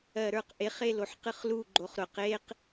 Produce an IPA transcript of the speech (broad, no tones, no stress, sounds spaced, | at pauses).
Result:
ɜ ɾ ə˞ q ʔ e χ e l o ħ q ɨ χ l u ɡ͡ǃ o χ ɾ ʊ q e q